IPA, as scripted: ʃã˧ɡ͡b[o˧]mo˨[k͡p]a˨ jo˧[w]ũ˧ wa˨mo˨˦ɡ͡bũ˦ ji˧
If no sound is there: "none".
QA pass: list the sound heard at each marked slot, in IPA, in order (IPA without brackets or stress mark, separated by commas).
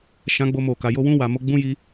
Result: o˧, k, w